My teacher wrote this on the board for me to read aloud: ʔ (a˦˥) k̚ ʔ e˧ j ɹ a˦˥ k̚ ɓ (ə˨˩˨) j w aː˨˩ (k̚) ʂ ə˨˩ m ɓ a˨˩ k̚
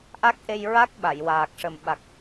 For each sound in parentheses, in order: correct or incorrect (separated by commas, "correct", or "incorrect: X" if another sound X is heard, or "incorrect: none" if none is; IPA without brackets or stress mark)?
correct, incorrect: a˨˩˨, correct